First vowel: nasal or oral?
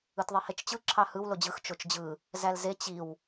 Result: oral